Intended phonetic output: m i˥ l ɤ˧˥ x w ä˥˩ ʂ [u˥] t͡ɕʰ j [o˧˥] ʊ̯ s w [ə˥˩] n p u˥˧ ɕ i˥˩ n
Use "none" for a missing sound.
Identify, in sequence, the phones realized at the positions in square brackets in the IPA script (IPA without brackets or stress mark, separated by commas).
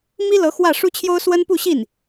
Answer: u˥, o˥, ə˥